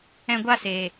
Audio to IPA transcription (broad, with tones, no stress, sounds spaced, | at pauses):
ɛ̃˧ ɡʷ a˦˨ s eː˨